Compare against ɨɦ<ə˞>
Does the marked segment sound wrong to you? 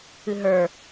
no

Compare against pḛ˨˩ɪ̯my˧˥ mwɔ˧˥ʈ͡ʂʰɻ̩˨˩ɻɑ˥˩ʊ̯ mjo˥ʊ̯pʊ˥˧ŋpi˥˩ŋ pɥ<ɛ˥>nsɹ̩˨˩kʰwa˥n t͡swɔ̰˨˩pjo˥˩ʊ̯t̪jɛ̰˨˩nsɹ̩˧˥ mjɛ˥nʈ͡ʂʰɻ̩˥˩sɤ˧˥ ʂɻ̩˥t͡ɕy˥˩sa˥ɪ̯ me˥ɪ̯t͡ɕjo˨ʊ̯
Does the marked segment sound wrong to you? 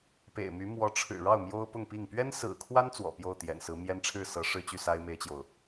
no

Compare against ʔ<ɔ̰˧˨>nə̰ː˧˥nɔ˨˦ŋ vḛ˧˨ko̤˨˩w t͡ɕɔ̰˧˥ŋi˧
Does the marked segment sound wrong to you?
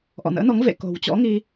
no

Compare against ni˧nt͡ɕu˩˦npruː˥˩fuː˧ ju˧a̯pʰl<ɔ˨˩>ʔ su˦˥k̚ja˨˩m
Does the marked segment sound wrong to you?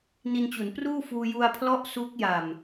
yes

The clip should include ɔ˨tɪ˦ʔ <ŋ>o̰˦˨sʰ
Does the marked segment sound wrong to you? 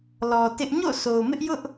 yes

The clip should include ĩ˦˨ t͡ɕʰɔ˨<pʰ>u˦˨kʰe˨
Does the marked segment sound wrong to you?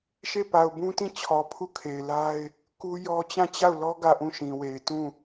no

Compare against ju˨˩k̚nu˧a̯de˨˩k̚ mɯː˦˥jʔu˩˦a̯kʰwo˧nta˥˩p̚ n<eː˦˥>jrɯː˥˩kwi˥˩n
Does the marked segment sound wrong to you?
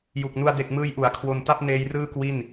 no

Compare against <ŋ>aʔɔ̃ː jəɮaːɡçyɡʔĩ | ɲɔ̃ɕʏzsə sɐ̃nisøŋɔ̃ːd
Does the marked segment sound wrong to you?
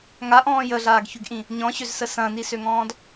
no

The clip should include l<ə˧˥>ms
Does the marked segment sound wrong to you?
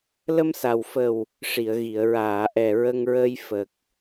yes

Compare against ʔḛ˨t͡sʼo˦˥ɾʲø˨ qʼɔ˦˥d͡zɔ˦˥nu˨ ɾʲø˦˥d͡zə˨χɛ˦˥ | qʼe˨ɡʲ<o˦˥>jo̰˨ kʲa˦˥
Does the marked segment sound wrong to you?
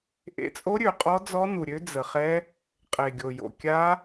yes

